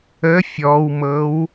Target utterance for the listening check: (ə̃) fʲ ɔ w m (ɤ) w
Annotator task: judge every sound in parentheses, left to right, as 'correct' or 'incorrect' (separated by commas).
incorrect, correct